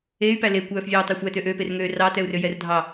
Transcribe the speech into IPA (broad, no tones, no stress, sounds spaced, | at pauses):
e y̯ p æ l e kʷ œː f vʲ œː tˤ ɛ xʷ æ t ø ʔ ø p e r ŋ øː r ɑ t ɛ u̯ r ø j ɛ r dʱ ɑ